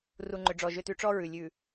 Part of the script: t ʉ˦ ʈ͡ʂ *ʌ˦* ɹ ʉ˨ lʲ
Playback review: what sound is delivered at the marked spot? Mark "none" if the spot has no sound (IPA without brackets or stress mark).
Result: ɔ˦